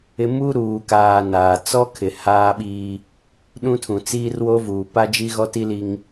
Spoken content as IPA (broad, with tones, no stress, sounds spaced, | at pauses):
ɪ˦ m u˦ ɾ uː˨ k aː˨ n aː˨ t͡s ɔ˦ kʰ ɪ˨ h aː˦ ɓ iː˦ | ɗ ũ˦ tʰ ũ˨ t͡s iː˦ r w oː˦ v uː˨ p a˦ d͡ʒ i˦ ɣ ɔ˦ t i˦ l i˦ ŋ